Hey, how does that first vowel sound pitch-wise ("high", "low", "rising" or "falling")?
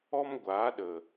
high